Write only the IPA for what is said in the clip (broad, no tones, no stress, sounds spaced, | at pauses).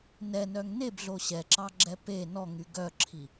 n ɛ n œ ŋ n e b ɮ o ɕ ɛ ǁ ɑ ɡ͡ǁ ɛ p e n ɔ ŋ y ɡ œ ǁʰ i